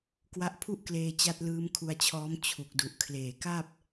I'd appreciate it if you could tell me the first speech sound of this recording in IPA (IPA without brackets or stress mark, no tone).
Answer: k